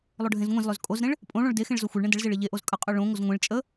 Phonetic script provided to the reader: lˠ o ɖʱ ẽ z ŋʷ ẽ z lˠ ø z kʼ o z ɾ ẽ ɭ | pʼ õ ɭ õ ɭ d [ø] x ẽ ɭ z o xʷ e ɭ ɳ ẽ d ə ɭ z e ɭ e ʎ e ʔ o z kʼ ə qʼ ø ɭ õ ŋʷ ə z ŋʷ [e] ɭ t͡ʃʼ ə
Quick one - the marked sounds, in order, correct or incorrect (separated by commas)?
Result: incorrect, incorrect